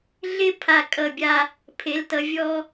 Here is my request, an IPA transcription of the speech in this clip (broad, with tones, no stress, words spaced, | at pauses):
ɮɪ˥pʰa˧˩ kʼʌ˧˩bʲa˧ | pʰe˩˧ltʌ˩˧ vʲɔ˧